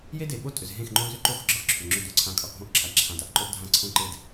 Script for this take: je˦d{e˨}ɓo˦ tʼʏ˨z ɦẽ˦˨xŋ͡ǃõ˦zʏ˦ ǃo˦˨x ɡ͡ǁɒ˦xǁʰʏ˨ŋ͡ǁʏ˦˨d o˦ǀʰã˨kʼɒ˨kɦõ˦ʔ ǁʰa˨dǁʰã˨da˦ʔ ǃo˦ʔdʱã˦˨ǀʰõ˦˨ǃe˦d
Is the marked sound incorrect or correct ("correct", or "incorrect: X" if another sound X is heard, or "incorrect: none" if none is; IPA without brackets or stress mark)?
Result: correct